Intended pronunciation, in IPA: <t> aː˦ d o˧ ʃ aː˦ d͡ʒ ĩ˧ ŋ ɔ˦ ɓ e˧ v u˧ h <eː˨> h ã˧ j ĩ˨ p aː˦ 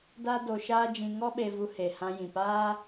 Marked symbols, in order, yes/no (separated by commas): no, no